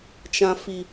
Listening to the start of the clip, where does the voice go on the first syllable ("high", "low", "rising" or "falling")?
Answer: low